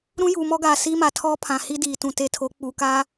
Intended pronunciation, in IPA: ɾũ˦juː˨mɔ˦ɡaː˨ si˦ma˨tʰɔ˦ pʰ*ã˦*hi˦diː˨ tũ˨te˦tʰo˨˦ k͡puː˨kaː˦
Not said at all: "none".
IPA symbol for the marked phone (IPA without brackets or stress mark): ã˨